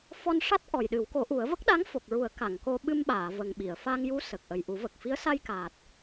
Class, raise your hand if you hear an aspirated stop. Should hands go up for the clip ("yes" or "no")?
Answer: no